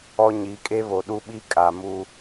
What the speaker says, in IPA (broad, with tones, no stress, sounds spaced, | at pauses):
ɔ˦ ɲ i˨˦ kʼ e˦ β o˨ ɗ u˦ ɓ i˦ kʼ a˨ m u˦